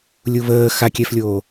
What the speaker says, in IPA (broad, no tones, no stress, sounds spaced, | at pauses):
lʲ u β əː x a kʲ ɛ f lʲ oː